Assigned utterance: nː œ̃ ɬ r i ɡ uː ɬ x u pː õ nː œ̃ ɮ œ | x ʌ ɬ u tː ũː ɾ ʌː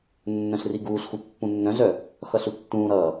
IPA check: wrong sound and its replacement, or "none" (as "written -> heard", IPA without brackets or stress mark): õ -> ũ